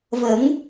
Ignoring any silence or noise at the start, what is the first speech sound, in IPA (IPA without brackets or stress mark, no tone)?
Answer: v